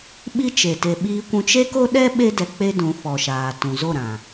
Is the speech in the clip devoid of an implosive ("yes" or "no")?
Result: no